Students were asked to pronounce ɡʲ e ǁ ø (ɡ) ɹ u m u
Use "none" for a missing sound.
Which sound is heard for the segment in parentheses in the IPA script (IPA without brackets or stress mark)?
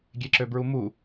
b